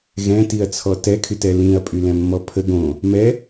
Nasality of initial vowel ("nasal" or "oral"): nasal